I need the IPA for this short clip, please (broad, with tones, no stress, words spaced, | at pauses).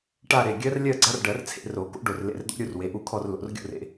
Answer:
ʈa˥˧ɾe˩˧˩ ɡʲɜ˦˥rlʲɜ˥˧ɡ͡ǀa˦˥r ɖɜ˨˩˦rt͡sʰḛ˨˩˦ro˨˩˦ko̰˦˥ ɖo˧˩rlḛ˧˩rd̪o̰˦˥ ɾʲu˥˧r we˩˧˩ʔu˦˥kʰɔ˥˧r lo̰˨˩˦rɡʲo̰˥˧rḛ˨˩˦